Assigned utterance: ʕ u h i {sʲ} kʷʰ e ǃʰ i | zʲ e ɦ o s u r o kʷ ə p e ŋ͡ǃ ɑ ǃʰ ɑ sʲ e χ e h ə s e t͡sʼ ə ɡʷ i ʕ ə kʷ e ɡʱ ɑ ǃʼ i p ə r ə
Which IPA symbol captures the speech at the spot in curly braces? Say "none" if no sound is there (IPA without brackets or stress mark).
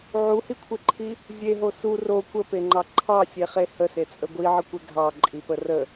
none